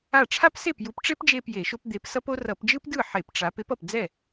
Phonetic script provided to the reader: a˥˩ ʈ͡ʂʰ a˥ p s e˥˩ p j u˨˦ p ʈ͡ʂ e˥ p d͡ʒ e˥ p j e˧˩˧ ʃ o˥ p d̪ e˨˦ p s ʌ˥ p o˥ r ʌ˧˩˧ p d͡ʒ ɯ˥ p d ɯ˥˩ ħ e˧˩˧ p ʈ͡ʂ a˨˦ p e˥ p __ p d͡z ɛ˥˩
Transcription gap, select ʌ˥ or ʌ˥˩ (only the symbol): ʌ˥˩